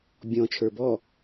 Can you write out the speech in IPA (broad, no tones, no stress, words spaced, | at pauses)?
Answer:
bʲɔ̃ t͡ʃʰə˞bɔ